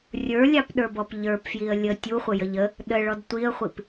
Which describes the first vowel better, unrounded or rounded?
unrounded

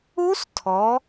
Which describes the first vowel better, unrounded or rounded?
rounded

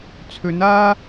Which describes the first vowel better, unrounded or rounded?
rounded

